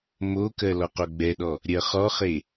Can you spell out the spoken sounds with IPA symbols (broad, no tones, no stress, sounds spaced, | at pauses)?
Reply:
m o k ɜ l ɔ q o ɡ͡b ɛ ɗ ɔ | ɾʲ ɜ χ ɔ χ e